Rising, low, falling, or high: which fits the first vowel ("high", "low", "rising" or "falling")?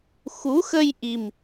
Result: rising